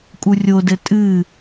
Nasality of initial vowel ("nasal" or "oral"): oral